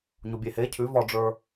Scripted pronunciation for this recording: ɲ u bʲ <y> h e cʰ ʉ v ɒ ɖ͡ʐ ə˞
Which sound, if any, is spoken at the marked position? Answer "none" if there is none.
e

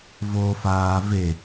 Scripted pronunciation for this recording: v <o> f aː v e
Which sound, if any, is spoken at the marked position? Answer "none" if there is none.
o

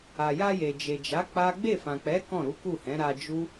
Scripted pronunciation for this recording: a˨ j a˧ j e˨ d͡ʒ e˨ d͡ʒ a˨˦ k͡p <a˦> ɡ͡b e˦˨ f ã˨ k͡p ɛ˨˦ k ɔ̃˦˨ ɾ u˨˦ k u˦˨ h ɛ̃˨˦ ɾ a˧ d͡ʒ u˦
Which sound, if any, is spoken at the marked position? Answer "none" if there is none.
a˦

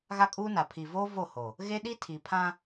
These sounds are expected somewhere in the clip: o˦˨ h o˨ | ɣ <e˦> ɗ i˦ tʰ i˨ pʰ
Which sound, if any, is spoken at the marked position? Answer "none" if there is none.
e˦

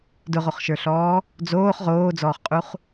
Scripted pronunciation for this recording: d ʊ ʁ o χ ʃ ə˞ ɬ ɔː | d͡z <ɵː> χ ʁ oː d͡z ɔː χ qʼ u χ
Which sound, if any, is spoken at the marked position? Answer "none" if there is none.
oː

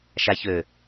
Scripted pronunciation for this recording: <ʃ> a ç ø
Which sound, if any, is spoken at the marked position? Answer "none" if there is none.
ʃ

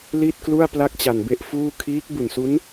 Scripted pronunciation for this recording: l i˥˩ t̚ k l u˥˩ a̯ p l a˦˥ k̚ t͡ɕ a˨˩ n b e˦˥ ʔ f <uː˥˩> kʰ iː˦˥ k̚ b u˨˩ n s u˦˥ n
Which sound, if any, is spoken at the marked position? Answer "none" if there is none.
uː˥˩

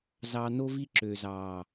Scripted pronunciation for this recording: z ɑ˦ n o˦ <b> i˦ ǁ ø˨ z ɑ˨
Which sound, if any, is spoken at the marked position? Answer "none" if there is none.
v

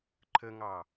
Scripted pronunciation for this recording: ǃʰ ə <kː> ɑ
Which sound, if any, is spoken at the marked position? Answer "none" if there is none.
ŋ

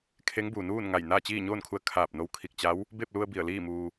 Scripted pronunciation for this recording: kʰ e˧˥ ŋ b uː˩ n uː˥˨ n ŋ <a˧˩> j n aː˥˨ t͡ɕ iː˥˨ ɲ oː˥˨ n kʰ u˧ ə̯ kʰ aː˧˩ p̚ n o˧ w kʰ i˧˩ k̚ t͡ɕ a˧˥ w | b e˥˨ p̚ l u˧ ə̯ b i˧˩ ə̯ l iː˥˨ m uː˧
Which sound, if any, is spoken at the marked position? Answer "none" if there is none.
a˧˩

